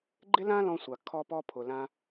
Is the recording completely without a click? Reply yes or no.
no